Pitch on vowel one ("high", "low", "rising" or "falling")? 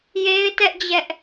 high